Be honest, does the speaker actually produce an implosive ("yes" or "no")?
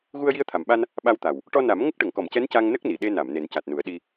yes